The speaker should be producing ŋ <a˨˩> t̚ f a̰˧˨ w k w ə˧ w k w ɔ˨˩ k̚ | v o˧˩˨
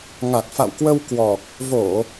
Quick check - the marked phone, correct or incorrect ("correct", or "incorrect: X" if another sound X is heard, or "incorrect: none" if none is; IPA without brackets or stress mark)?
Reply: correct